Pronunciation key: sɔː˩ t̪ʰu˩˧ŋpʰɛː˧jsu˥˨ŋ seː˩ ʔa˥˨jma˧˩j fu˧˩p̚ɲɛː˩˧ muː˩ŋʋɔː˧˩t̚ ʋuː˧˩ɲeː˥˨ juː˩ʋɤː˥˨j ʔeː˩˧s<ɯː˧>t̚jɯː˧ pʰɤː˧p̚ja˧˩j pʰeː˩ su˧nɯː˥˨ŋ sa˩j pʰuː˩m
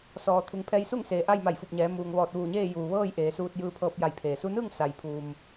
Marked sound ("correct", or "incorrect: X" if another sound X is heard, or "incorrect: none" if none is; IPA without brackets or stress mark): incorrect: uː˧